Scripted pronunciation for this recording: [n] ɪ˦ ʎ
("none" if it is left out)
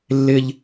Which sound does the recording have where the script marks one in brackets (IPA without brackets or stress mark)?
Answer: lː